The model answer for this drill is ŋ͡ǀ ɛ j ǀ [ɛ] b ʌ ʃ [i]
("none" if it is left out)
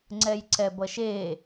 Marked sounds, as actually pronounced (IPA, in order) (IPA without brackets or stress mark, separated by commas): ɛ, e